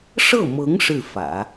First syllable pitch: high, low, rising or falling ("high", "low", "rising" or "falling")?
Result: falling